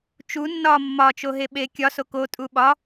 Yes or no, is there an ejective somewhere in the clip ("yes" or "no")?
yes